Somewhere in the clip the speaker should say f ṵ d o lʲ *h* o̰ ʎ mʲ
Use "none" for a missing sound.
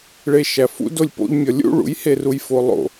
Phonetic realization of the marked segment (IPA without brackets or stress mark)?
p